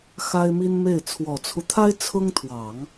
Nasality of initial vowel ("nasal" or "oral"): oral